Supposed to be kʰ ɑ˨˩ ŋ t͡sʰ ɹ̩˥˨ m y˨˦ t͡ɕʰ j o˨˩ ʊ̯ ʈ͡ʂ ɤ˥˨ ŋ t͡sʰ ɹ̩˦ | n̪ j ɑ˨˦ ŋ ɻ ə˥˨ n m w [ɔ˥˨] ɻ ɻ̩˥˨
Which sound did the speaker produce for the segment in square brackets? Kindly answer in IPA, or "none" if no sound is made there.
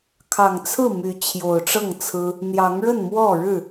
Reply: ɔ˥˨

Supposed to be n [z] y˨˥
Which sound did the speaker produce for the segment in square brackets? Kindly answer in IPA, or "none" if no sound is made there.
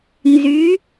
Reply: z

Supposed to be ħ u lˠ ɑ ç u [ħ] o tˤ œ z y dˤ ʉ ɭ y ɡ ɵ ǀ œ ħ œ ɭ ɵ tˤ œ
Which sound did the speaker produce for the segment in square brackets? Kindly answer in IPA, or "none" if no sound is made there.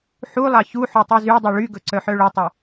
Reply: ħ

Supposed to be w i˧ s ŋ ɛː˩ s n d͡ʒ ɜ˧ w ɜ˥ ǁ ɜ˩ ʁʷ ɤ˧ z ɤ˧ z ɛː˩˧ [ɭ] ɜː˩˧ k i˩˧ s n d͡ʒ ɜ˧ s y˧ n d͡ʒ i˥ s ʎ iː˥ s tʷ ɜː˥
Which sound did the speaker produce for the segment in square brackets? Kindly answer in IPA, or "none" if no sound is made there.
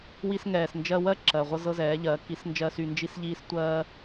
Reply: ʎ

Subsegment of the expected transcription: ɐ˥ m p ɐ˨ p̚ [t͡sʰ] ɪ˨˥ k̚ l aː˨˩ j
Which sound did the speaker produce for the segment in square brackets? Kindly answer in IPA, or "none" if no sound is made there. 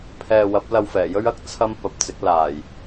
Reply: t͡s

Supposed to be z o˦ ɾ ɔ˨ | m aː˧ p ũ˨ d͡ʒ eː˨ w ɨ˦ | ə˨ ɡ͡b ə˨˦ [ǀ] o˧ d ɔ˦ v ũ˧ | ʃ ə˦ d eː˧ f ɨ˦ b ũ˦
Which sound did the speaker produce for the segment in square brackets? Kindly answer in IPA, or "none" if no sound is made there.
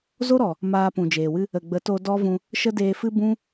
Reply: t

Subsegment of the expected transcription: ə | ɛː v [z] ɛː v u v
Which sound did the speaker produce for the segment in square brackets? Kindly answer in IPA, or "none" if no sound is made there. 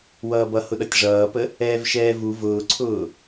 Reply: ʃ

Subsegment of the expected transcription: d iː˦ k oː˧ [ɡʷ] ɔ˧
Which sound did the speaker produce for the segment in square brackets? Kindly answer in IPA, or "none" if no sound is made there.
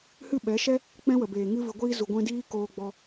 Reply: ɡ͡b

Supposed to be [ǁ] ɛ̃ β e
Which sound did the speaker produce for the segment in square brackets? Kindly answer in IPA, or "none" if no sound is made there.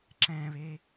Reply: ǁ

